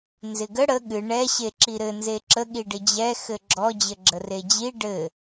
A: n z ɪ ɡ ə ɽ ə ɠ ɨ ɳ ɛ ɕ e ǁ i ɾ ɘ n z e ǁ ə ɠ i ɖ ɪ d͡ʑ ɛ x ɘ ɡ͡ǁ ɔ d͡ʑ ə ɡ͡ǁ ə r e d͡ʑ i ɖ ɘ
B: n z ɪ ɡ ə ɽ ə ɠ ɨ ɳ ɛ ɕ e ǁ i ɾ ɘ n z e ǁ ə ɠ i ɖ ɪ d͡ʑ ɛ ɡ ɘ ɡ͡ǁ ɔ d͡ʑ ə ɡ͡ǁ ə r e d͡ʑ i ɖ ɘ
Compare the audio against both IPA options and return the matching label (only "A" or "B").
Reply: A